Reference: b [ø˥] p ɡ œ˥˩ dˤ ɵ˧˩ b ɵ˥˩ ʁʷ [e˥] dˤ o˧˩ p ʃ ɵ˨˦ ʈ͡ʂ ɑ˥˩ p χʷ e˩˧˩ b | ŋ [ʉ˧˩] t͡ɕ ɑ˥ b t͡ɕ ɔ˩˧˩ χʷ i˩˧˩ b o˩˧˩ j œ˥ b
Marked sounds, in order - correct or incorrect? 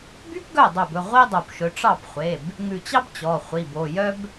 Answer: incorrect, incorrect, correct

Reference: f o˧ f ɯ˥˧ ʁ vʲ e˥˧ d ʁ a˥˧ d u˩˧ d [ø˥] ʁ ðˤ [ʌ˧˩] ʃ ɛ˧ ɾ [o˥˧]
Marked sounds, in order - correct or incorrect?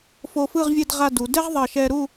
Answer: incorrect, correct, incorrect

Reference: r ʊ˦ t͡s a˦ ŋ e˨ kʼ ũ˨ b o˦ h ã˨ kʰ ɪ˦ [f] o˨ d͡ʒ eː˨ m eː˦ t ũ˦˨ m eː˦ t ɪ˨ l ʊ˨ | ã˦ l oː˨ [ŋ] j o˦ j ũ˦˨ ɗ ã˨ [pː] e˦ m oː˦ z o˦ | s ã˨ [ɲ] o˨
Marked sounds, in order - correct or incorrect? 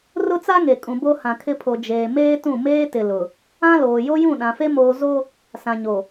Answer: incorrect, incorrect, incorrect, correct

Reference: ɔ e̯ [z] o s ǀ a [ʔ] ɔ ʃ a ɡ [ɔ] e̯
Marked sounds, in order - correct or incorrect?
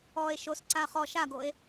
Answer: incorrect, incorrect, incorrect

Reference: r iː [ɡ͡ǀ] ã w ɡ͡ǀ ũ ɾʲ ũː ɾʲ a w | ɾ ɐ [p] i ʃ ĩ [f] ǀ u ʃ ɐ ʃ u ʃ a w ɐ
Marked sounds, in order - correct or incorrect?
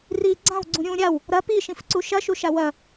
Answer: correct, correct, correct

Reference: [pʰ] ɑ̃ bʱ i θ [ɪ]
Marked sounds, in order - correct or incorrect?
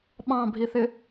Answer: incorrect, correct

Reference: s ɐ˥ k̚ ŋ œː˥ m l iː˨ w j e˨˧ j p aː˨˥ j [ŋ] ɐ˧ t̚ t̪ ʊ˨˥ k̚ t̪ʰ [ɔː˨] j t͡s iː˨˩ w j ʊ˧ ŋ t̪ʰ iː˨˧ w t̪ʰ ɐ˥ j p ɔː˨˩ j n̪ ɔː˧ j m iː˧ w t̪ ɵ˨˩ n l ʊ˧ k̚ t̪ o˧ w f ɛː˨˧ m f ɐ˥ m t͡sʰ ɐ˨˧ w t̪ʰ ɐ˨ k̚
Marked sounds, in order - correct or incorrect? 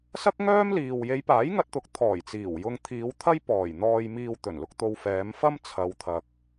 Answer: correct, incorrect

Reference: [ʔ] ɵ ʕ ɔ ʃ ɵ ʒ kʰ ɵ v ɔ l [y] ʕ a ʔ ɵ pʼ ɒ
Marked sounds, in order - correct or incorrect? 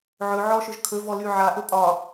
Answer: incorrect, correct

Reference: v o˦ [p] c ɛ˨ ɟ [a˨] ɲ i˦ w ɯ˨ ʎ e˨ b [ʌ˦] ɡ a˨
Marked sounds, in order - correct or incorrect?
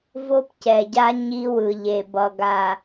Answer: correct, incorrect, incorrect

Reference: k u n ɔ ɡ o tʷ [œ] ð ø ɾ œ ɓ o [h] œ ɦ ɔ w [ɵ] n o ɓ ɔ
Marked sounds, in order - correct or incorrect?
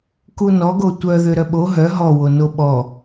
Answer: correct, incorrect, incorrect

